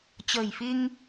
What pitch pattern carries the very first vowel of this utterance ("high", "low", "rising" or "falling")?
low